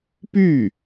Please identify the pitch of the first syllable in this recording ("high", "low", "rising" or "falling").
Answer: falling